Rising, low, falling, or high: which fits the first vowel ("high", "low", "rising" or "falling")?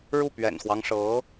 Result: falling